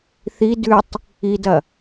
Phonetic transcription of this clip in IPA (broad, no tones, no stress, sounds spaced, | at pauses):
θ i d ʉ tˤ | i d ɐ